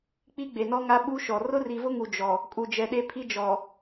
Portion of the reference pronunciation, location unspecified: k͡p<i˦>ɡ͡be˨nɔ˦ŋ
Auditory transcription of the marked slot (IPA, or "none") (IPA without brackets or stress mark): i˦